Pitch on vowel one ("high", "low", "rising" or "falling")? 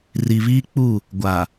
low